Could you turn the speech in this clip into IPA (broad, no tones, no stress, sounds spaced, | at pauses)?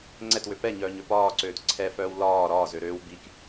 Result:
ŋ͡ǀ ɛ t w ø p ɛ ɲ œː ɲ ø p ɒː ǀ øː t ǀʰ ɛ f œː w l ɒː ɾ ɒː z ø ɾ øː w b i k